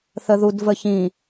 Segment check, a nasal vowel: present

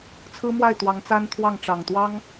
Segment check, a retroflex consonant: present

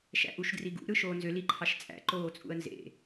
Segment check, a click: present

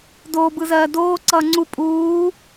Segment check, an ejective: present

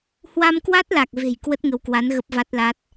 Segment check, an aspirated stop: absent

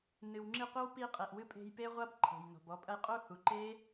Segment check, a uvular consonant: present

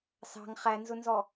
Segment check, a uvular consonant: present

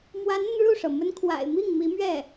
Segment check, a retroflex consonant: present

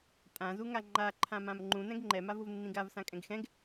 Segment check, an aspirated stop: present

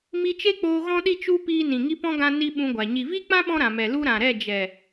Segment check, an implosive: present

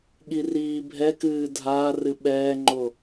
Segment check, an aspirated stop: absent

